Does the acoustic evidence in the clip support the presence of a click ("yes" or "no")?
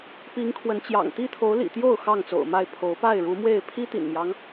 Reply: no